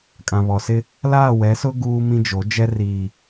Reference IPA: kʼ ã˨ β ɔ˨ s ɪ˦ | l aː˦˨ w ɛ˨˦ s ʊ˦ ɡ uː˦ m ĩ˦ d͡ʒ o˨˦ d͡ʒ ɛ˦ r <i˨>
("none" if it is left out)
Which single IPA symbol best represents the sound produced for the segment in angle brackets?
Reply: iː˨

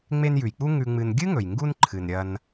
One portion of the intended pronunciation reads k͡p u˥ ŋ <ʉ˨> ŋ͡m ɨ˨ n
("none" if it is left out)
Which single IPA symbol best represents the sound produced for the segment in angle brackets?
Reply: ʉ˨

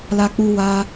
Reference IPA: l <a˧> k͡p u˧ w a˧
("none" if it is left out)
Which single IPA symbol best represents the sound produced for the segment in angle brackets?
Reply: a˧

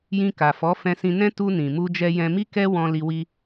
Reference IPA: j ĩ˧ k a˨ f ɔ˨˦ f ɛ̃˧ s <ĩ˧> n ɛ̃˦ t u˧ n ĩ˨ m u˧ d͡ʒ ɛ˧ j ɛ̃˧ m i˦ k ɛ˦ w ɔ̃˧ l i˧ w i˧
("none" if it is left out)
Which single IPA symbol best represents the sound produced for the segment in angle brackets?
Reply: ĩ˧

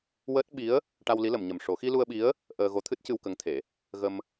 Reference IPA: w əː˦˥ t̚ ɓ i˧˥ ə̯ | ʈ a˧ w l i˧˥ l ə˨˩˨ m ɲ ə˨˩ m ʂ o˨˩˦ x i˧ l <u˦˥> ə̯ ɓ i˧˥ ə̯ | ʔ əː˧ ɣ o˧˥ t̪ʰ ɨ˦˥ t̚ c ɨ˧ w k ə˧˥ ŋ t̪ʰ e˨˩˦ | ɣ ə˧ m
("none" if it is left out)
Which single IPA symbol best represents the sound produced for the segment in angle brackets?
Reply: u˧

